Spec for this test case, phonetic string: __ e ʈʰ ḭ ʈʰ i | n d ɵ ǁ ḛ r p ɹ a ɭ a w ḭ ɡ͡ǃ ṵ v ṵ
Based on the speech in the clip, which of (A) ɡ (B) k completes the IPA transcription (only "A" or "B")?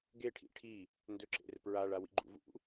A